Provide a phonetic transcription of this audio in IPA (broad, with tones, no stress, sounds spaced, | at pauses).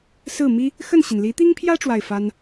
s ɹ̩˥˩ m i˥ | x ə˥˩ n ɕ i˩ n l i˧˥ t̪ i˥ ŋ pʰ j ä˥ ʈ͡ʂ w a˥˩ ɪ̯ f a˥ n